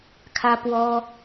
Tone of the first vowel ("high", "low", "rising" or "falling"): high